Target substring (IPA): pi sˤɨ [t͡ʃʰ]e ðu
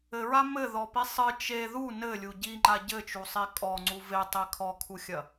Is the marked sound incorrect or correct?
incorrect